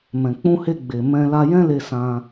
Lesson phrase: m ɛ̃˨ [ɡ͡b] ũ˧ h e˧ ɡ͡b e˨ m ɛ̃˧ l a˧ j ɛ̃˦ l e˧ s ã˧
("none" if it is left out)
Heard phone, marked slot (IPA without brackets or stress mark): k͡p